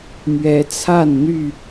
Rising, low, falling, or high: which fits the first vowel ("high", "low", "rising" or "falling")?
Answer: rising